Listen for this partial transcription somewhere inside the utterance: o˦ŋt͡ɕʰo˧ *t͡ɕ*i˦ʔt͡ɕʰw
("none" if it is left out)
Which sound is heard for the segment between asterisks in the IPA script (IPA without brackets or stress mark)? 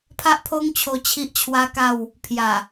t͡ɕʰ